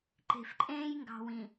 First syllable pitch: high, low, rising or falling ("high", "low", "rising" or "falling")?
low